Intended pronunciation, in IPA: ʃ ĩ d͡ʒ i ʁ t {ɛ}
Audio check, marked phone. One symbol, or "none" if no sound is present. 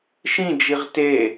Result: e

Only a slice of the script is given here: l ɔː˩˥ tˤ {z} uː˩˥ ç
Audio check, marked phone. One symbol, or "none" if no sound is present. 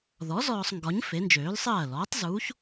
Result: z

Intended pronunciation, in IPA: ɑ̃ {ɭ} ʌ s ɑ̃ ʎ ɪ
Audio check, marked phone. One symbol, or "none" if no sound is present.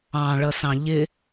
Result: ɭ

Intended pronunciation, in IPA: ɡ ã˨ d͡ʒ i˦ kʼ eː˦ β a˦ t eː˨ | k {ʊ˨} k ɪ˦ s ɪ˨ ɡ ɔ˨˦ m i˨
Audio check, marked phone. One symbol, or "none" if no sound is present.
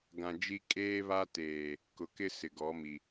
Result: ʊ˨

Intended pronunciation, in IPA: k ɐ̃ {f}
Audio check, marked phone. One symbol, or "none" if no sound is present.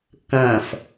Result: f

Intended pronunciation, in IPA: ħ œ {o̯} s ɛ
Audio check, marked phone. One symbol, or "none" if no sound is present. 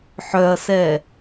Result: ɐ̯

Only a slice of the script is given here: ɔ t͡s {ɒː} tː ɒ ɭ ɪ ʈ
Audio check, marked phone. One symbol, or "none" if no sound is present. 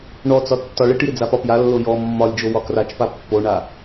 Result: ɒ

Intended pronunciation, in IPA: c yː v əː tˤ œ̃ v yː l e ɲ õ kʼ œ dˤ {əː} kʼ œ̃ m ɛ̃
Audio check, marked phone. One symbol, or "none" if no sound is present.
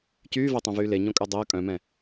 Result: əː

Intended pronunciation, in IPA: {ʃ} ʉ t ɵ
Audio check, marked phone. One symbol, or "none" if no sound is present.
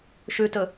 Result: ʃ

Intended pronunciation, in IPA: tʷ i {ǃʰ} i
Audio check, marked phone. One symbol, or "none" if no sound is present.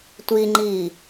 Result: ŋ͡ǃ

